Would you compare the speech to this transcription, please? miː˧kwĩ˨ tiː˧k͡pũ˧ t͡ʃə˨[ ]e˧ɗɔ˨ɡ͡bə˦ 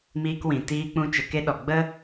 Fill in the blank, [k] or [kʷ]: k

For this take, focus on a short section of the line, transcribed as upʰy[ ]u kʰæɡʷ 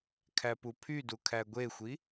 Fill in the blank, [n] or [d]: d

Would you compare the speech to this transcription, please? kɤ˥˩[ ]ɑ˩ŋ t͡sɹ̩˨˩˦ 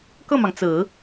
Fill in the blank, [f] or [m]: m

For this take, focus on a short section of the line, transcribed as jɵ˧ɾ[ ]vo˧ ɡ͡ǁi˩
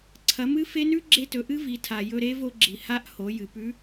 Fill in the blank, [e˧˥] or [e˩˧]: e˧˥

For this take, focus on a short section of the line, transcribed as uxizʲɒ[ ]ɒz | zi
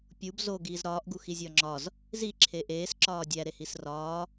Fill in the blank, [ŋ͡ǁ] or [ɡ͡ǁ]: ŋ͡ǁ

